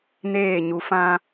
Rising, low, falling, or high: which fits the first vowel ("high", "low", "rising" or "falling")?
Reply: falling